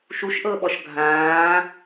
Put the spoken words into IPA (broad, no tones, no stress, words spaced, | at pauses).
ʃuʃʔɤɓɔʃ ɡʱãː